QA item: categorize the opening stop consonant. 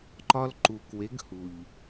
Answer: click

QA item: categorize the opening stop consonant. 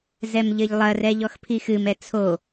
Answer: aspirated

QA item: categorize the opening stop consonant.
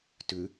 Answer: plain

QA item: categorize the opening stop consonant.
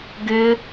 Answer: plain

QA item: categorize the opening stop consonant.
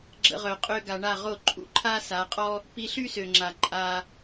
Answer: click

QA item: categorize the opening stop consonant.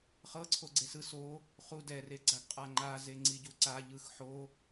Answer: click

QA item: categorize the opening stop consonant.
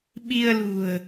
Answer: implosive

